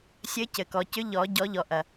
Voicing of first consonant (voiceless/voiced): voiceless